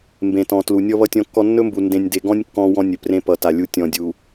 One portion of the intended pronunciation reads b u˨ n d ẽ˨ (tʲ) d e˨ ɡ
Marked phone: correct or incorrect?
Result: incorrect: nʲ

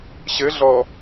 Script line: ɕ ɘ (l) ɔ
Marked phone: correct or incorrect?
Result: incorrect: ɮ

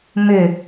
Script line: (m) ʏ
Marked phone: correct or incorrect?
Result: correct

